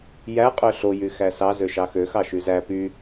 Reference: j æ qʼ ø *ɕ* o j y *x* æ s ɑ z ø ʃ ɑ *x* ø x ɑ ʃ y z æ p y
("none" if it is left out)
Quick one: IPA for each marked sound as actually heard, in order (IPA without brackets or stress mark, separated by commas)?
ɬ, x, x